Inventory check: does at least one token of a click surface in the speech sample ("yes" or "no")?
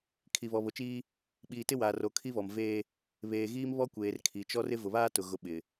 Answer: no